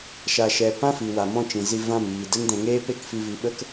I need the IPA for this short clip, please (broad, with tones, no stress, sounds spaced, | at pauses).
ʃ a˧ ʃ ɛ˧ p ã˦ f i˨ w a˨ m ɔ̃˧ t͡ʃ ĩ˨ z i˧ v ã˦˨ m iː˨ d ə˦ n d ɛ̃˧ ŋ eː˦ p e˦ k f i˧ v i˨ ɓ ə˦ k